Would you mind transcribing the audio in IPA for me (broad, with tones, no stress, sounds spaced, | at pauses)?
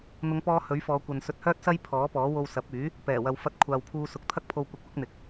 n̪ ʊ˨˧ ŋ p ɔː˧ h ɵ˨˥ ɥ f ɔː˨˧ kʷ ɐ˨ n s ɵ˧ t̚ h œː˥ t̚ s ɐ˥ j pʰ ɔː˨˥ p ɔː˨˥ w o˧ w s ɐ˨˥ p̚ yː˨˥ | p ɛː˨˩ w ɐ˨ w f ɐ˧ t̚ kʷʰ aː˨ w pʰ uː˧ s ʊ˨ k̚ t̪ʰ ɐ˥ k̚ pʰ o˧ w kʷ ɐ˨ k̚ w ʊ˨˥ k̚ n̪ ɪ˨˥ k̚